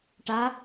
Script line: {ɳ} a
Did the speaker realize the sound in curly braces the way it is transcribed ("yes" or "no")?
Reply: no